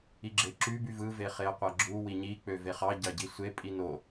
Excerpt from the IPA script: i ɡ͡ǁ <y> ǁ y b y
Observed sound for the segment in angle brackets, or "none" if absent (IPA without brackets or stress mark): e